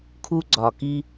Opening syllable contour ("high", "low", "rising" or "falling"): high